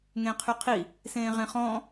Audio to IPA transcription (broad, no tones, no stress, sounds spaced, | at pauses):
ŋ ẽ qʰ y qʰ i | s ẽ ʁ ẽ χ ɔ̃